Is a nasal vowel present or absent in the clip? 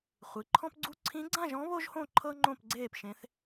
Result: present